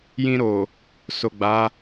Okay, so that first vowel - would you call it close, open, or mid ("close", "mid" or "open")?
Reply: close